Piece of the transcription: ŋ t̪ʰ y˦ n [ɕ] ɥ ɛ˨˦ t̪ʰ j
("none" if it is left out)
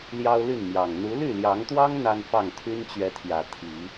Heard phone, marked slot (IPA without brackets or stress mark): t͡ɕ